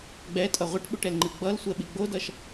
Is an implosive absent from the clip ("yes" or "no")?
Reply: no